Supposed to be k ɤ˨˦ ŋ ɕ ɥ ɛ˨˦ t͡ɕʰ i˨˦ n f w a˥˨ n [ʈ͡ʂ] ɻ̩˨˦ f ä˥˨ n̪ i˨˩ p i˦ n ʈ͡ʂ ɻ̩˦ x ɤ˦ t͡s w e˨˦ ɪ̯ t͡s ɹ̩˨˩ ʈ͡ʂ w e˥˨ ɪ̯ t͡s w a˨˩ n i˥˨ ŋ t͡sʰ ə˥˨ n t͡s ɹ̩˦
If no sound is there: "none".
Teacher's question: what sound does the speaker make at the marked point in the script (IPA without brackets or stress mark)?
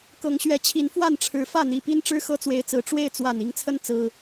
ʈ͡ʂʰ